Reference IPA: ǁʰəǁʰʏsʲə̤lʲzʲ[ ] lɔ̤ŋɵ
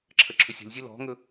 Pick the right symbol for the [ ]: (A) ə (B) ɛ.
A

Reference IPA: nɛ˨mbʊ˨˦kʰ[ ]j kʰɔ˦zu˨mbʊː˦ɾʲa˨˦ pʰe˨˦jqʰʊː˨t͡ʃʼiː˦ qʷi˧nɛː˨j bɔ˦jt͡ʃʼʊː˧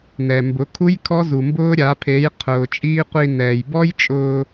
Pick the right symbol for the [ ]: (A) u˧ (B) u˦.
B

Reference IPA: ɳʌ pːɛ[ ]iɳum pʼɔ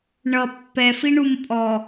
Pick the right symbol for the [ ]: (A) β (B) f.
B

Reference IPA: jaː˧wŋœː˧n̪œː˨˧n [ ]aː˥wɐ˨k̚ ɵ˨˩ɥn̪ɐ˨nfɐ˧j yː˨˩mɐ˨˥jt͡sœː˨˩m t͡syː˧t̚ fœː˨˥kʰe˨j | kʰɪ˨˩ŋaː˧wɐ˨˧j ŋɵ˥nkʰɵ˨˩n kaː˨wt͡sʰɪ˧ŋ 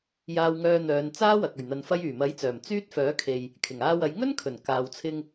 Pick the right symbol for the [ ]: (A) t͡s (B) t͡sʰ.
A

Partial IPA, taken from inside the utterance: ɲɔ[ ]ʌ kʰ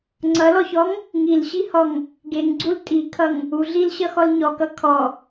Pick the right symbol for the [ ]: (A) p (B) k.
B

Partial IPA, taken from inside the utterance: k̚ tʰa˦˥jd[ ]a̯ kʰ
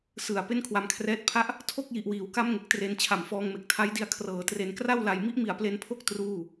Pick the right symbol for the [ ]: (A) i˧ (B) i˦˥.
A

